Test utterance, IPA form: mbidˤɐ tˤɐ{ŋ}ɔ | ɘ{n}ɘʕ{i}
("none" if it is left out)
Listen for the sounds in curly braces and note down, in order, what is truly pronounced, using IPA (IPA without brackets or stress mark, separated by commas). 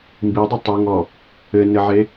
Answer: ŋ, n, e